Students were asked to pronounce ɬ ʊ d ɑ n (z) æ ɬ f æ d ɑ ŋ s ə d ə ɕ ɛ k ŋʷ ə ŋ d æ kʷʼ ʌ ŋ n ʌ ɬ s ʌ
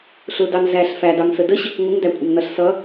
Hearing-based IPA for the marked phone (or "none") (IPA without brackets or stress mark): z